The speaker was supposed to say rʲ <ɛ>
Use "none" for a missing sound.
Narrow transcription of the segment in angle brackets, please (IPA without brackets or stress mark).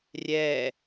ɛ